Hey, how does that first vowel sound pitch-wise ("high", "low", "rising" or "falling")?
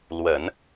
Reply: low